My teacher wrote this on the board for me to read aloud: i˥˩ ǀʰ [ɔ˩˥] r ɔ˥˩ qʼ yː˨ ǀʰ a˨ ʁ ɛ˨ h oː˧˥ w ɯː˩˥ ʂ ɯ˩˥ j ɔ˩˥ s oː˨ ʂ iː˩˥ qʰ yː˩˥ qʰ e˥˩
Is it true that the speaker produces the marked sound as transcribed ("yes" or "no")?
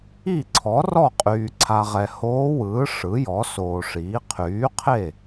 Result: yes